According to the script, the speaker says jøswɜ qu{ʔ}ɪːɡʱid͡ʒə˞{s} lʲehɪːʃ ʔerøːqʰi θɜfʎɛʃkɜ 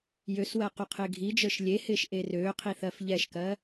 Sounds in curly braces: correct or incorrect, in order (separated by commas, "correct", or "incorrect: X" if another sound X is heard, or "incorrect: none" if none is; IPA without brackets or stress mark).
incorrect: qʰ, incorrect: ʃ